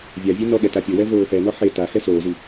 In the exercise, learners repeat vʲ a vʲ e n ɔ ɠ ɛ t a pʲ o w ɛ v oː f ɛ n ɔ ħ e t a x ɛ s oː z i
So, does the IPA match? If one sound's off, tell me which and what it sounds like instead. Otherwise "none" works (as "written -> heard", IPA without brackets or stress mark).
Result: none